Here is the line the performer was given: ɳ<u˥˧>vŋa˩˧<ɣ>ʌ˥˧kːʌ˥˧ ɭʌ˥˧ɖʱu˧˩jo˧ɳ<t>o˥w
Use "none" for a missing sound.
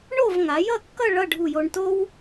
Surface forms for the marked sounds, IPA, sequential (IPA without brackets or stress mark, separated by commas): o˥˧, j, t